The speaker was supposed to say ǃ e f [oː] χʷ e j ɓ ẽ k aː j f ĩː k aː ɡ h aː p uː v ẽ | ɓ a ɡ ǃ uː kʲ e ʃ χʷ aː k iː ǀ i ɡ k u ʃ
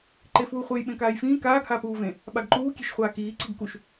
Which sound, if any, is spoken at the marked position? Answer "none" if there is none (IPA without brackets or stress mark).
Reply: uː